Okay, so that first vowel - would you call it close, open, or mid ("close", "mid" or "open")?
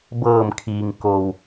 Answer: mid